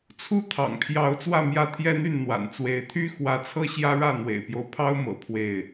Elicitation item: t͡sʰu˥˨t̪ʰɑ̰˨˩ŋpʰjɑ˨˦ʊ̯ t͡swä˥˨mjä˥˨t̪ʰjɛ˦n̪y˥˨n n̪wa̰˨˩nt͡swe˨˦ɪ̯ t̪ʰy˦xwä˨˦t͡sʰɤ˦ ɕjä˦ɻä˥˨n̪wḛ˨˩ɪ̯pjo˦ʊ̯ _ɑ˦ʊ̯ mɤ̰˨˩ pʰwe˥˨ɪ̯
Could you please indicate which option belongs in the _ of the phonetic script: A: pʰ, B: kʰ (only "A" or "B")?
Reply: A